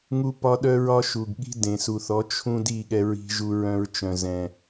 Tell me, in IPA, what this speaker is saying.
ŋu˦pɒ˦ ɗœ˦ɹɒ˦ ʃu˨ɡ ɠi̤˦dẽ˨su˨θɔ˨˦ t͡ʃʰũ˦di˦˨ ɠɛ˦ɹi̤˦ʒu˦ ɹœ̃˦ɹt͡ʃœ̃˨ zɛ̃˨

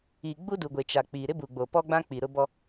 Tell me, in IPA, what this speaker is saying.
iː˨ɡ͡bu˦du˨ɡʷe˨ t͡ʃa˨k͡pi˨ ɾɪ˦bu˨ɡ͡bo˨pɔ˦ ɡ͡bã˦k͡pi˨ ɾʊ˦bɔ˦

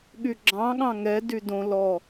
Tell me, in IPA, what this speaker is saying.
ɠyɡ͡ǁɑ̃ɠɑ̃ ŋɛ dydõ lɔ

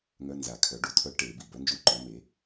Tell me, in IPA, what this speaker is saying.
ŋœ˧˥˧nza˨˩˦ kʰœ˩˥ ɖu˩˥tʰœ˧˥ ʈe˨˩˦ bi˩ bœ˧˥nd͡ʒu˧˥˧ǃœ̃˩˥ me˩˥

